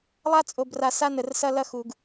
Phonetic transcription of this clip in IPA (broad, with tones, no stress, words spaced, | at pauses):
lˠa˦ t͡sʼo˨bra˨sa˦ nə˨rsɐ˦ lɐ˦xu˨ɡ